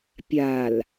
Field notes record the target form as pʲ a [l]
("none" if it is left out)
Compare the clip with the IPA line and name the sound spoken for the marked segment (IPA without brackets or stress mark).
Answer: l